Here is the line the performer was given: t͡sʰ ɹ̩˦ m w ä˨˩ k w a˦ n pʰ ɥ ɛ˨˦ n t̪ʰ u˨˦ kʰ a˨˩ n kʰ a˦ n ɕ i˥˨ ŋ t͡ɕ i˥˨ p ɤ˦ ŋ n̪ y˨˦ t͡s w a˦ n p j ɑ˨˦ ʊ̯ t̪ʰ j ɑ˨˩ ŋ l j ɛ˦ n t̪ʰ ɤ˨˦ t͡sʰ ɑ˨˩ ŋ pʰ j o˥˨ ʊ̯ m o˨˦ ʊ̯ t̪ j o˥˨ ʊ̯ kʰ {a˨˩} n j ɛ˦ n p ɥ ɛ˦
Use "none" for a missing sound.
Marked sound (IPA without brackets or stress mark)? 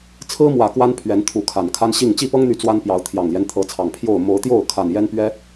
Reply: a˨˩